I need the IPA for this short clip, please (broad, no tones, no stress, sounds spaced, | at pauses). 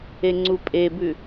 e ŋ͡ǀ u pʼ e b ʉ